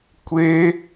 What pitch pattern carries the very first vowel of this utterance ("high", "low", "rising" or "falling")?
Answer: high